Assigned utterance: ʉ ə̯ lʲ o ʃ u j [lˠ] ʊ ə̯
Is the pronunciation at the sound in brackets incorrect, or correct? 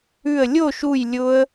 incorrect